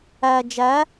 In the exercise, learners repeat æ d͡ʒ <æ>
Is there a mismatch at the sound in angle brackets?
no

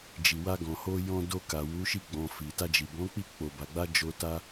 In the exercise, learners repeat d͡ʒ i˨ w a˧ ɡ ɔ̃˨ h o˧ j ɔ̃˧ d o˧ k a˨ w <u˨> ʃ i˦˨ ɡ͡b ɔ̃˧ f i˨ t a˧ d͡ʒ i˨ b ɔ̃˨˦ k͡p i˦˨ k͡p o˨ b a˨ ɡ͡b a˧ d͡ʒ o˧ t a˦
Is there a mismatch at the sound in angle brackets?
yes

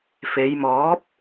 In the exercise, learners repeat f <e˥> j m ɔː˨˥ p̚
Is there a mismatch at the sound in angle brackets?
yes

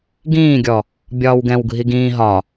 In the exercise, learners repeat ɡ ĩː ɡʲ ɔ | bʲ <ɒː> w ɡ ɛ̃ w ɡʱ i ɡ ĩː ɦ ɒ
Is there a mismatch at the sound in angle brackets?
no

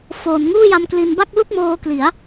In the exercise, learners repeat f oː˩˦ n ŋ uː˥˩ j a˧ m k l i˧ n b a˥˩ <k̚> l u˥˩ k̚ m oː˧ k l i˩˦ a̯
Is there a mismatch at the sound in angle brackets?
no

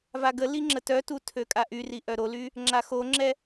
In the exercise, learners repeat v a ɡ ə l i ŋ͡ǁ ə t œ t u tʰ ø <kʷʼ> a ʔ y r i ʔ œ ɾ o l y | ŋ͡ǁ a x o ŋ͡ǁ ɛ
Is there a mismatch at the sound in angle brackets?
yes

